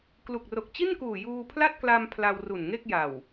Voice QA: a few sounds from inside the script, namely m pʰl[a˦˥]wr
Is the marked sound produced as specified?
no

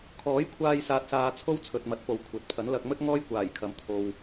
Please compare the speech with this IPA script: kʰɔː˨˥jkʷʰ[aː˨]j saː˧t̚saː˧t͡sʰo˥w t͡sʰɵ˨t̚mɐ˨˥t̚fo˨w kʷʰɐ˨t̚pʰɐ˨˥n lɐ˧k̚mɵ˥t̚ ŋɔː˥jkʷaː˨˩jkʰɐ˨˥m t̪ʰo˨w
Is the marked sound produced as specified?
no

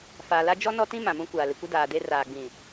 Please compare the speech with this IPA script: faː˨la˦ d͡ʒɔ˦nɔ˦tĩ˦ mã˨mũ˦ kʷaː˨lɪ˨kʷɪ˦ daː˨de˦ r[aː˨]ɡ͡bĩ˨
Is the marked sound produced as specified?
yes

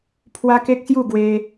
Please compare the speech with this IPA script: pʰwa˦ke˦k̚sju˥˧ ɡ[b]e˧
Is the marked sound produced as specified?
no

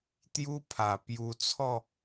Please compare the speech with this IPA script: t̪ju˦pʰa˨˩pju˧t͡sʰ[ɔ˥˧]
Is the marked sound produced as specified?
yes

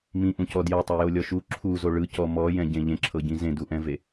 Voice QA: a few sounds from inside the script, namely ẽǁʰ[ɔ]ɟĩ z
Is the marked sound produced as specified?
no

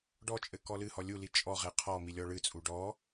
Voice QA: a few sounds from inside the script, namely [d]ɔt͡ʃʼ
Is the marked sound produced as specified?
no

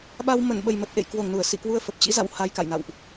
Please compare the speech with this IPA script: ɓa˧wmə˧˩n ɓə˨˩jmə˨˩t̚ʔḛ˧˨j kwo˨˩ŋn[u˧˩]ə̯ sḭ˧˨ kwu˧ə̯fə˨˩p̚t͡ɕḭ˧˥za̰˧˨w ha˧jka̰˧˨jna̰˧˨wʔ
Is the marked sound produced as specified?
yes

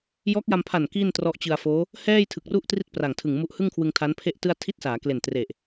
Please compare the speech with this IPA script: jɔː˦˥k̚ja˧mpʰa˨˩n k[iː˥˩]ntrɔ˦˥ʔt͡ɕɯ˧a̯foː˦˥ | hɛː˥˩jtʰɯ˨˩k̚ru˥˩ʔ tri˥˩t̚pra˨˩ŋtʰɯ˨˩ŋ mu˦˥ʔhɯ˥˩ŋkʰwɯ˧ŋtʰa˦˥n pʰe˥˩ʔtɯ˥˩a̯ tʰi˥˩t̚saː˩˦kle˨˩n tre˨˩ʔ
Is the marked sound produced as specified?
yes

